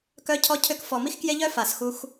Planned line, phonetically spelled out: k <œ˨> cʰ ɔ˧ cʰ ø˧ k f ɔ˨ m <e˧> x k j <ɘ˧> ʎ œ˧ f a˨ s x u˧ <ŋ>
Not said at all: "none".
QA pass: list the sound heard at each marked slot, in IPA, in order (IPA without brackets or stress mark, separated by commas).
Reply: œ˧, i˧, e˧, x